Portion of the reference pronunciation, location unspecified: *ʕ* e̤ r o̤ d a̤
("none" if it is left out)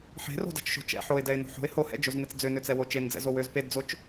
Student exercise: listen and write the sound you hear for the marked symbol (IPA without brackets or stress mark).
ħ